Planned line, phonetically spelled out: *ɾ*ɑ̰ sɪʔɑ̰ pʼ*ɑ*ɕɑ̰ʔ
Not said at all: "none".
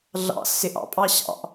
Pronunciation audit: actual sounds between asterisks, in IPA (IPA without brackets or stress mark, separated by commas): ɮ, ɑ